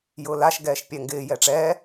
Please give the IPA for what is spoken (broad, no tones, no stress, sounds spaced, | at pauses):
j ʊː l a ʃ ɡ ɛː ʃ pʲ ɛ ŋ ɡ ɪː j ɛ ʈ͡ʂ ɛː